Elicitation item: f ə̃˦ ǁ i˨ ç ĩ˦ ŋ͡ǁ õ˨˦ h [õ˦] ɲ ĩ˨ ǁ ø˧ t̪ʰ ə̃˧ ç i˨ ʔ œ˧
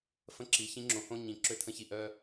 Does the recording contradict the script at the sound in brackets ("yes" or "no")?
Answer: no